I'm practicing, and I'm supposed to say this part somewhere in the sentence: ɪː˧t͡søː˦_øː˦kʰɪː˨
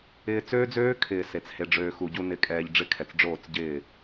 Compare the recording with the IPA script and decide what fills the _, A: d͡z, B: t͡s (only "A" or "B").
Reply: A